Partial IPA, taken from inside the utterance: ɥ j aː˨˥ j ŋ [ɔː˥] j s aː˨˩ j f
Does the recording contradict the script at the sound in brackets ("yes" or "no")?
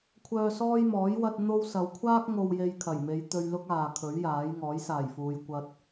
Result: yes